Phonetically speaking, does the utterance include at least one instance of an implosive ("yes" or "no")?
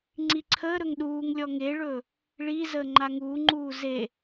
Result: yes